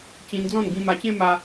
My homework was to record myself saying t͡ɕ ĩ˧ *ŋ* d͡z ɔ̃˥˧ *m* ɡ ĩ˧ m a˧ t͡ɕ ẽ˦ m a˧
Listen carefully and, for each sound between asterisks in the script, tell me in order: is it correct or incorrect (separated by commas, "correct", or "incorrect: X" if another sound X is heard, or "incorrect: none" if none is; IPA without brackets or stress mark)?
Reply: incorrect: n, incorrect: n